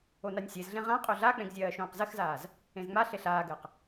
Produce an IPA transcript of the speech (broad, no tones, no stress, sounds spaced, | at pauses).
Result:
o n a nʲ sʲ e z ɮ ẽ ʁ ã qʼ o ɮ a k͡p ẽ ɡ zʲ ɜː ʃ õː q z ɜ x z aː z | ẽ z ŋ͡m a ɬ e ɬ aː ɡ ɜ q